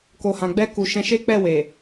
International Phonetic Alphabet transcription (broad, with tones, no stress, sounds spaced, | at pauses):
k o˨ h ã˨ ɡ͡b ɛ˧ k u˨ ʃ ɛ̃˧ ʃ e˦ k͡p ɛ˦˨ w e˨